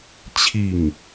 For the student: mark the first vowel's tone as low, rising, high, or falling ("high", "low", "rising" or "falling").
falling